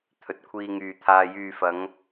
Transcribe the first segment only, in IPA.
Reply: t̪ʰ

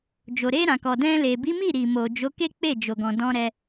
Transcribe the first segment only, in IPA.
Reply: d͡ʒ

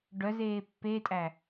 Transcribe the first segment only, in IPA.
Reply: ɖ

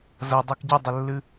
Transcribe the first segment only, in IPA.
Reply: z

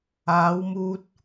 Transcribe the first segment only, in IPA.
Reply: aː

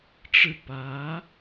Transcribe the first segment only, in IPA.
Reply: ʈ͡ʂ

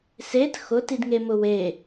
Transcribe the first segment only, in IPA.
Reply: s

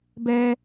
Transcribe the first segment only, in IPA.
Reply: b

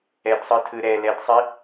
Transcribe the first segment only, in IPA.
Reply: ɛ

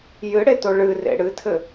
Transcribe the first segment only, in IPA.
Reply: j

